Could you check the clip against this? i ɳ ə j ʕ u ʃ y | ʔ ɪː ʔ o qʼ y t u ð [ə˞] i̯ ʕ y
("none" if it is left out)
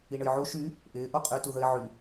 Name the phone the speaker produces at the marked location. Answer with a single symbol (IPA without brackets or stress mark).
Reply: ə